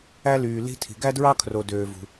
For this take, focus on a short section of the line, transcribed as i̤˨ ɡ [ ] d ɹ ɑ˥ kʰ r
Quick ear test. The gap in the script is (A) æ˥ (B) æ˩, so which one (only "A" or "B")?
A